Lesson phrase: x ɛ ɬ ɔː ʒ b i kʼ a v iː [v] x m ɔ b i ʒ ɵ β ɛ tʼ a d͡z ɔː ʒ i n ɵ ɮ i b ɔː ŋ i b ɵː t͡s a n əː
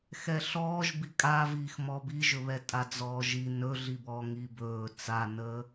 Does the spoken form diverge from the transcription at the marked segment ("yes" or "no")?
yes